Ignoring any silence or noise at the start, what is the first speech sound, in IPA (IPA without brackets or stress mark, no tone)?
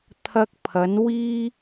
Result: t̪ʰ